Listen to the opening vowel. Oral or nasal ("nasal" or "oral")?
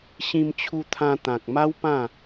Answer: nasal